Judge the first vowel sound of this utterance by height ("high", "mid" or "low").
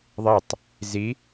high